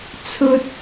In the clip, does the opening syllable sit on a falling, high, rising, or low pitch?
high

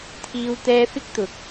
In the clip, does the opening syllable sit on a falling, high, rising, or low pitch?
high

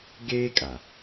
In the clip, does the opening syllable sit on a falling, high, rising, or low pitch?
high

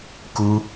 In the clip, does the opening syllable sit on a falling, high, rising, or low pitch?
high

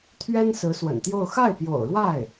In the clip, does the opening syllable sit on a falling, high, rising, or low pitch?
high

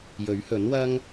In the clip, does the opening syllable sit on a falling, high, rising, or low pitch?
rising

